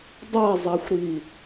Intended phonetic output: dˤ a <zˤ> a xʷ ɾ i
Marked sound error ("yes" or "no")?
no